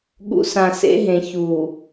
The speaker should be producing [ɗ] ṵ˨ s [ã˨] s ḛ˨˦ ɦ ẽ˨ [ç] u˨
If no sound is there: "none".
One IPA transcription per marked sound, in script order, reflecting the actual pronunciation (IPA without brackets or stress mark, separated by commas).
ɠ, ã˨, ç